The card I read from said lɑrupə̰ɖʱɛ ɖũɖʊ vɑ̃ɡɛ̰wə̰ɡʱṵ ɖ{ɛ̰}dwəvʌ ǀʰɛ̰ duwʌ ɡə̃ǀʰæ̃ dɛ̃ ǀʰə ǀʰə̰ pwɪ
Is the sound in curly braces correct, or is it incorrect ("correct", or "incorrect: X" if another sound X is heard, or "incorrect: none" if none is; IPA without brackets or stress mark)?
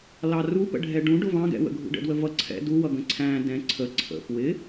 incorrect: ə̰